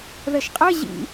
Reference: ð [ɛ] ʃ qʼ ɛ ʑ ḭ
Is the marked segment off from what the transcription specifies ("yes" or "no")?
no